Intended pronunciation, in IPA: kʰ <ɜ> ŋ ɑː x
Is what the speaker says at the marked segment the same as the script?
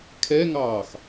no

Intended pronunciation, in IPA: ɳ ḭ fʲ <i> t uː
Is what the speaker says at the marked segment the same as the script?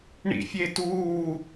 no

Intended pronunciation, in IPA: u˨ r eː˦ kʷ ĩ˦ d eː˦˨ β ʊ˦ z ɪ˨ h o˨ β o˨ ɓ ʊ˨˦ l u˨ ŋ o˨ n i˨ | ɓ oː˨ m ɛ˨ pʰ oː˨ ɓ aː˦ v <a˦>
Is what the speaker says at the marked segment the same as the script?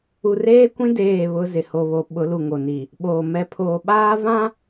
no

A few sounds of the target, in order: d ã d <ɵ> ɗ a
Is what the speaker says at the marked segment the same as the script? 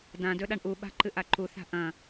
yes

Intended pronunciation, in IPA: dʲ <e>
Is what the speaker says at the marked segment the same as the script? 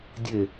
yes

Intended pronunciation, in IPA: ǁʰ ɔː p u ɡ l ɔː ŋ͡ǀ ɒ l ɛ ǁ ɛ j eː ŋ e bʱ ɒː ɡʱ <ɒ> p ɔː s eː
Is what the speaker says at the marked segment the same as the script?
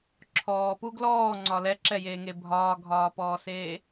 no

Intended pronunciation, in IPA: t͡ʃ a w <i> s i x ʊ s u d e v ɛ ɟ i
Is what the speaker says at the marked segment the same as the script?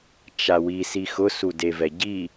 yes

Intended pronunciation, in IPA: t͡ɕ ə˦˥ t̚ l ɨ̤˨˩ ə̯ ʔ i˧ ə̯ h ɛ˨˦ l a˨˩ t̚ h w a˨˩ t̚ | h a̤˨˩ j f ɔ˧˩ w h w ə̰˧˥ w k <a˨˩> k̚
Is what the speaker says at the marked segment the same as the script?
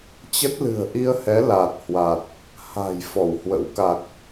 yes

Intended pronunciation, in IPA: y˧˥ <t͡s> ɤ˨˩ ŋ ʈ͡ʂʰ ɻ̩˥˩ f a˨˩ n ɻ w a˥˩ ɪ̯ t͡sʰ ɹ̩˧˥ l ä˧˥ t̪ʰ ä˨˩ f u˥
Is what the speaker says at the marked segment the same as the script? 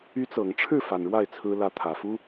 yes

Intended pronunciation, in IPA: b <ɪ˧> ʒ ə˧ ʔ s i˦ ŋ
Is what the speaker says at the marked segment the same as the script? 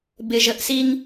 yes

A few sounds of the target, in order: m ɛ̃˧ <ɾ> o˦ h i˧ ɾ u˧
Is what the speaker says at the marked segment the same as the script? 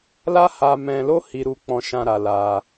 no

